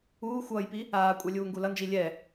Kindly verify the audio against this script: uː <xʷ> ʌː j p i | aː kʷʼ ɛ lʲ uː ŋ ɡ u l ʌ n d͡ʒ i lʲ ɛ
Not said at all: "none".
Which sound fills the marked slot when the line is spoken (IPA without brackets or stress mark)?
xʷ